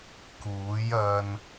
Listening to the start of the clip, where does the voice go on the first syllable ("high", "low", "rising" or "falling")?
rising